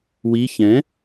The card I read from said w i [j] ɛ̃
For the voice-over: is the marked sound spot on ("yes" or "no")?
no